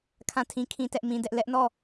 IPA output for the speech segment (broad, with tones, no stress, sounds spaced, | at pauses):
kʰ ã˦˨ tʰ ĩ˦ kʰ ĩ˦ t ɛ˦ ʔ m ĩ˦ d ɛ˦ ʔ l ɛ˦ ʔ n ɔ˦˨